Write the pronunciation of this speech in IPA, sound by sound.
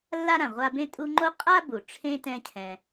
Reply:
lː a˦ ɾ ã˩ ʁʷ a˦ b ẽ˥ tʼ u˦ ŋ͡ǃ o˥ qʼ a˥ b u˩ ʈ͡ʂʰ ẽ˥ t ɛ̃˦ cʰ ɛ̃˨

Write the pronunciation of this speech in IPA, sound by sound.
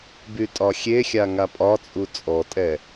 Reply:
b y tʼ ɒ xʲ e xʲ a ŋ a pʼ ɒ t͡sʼ u t͡sʼ ɔ tʼ ɛ

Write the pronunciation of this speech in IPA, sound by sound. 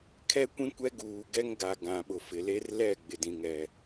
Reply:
kʰ ɛ˦ kʷ ĩ˦ kʷ ɛ˦ ɡ uː˨ ɡ ɛ˦ ŋ ɡ a˨ ɡ ã˨ ɓ ʊ˨ f ɪ˨ l e˦ r l ɛ˦˨ ɡ͡b ɪ˨ d ĩ˨ ŋ ɛ˨

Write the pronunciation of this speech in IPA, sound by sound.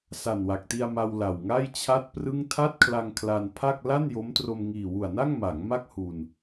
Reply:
s a˨˩ n w a˨˩ k̚ t i˧ a̯ m a˧ w l a˨˩ w ŋ a˥˩ j t͡ɕʰ a˥˩ t̚ p r ɯ˥˩ ŋ tʰ a˥˩ t̚ kʰ l a˧ ŋ kʰ l a˧ n pʰ a˥˩ k̚ l a˥˩ n j o˦˥ m t r o˧ m ŋ iː˨˩ w u˨˩ a̯ n a˥˩ ŋ m a˩˦ ŋ m a˥˩ k̚ h u˧ n

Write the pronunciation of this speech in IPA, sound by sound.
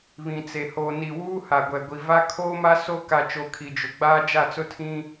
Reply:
β ĩ˨ t͡s e˨ h o˨ n i˨ w uː˦ h a˨ ɡʷ ɛ˨ ɡʷ i˨ v a˦ kʰ oː˦ m a˦ s o˦ k a˨ t͡ʃ o˨ kʰ i˨ d͡ʒ ʊ˨ ɡ͡b aː˦ d͡ʒ a˦˨ t͡s ʊ˦ tʰ ĩ˦

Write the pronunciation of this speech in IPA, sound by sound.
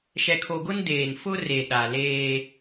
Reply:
ʃ ɛ˨ kʰ o˨ ɡ ʊ˦ n d eː˨ n f ʊ˦ r e˨ ɗ a˨ l eː˦

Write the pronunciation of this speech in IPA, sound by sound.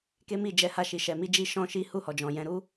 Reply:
k e˦ m i˦˨ d͡ʒ ɛ˨˦ h a˧ ʃ i˨ ʃ ɛ˨ m i˧ d͡ʒ i˧ ʃ ɔ̃˦ ʃ i˦ h u˦˨ h ɔ˨ d͡ʒ ɔ̃˨ j ɛ̃˧ ɾ u˦

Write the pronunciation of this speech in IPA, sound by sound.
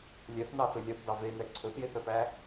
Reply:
lʲ ɛ θ n ɑ θ ɵ lʲ œ θ d ɑ v e n ɛ ǀʰ ɵ θ j e θ œ p æ

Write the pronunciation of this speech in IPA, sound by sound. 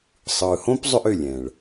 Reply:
sˤ ɯː˨ h õ˦ p zˤ ʏ˧ ʔ ʏ˦˨ lʲ ɛ̃˨ ɭ

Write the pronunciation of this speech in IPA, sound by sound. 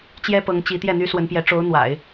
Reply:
t͡ɕ j ɛ˥ p ɤ˧˥ ŋ t͡ɕ i˧˥ t̪ j ɛ˥˩ n̪ y˥ s w ə˧˥ n p j ɛ˧˥ ʈ͡ʂ o˧˥ ʊ̯ n̪ w a̰˨˩˦ ɪ̯

